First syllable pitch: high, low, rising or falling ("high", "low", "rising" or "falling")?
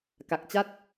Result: low